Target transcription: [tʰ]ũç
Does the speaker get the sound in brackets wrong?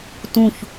yes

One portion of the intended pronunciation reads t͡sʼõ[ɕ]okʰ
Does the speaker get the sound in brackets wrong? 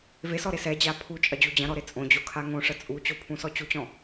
yes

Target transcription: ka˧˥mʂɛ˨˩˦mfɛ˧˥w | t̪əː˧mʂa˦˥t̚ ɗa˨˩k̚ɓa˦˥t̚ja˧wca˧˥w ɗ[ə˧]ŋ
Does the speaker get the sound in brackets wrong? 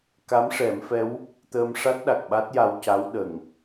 yes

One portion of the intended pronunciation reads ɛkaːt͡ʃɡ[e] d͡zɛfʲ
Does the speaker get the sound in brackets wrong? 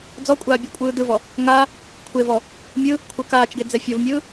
no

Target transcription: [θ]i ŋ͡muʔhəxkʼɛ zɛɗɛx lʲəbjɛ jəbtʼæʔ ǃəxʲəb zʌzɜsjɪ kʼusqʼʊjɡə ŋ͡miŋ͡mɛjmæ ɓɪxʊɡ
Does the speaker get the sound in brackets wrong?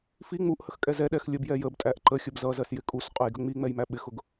yes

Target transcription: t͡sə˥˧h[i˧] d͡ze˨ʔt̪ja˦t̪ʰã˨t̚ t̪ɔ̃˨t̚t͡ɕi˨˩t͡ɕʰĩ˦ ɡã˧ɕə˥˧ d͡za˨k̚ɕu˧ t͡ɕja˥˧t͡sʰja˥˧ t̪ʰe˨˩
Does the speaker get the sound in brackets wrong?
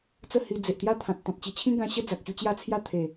no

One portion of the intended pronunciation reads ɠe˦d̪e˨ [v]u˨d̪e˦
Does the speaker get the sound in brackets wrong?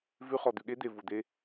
no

